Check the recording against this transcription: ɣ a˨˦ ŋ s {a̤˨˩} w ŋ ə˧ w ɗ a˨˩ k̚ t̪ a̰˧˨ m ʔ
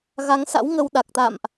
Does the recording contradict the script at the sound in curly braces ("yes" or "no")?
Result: yes